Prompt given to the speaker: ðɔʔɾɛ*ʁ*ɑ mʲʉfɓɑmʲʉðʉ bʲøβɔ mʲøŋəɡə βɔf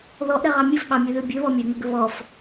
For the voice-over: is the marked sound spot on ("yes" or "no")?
yes